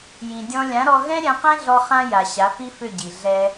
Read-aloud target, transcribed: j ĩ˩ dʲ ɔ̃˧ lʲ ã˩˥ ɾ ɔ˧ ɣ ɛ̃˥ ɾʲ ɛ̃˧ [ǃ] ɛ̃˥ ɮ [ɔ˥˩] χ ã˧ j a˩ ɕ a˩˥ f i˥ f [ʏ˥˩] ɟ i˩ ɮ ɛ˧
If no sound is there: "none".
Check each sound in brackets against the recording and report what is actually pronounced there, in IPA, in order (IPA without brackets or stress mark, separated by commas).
q, ɔ˧, ʏ˥˩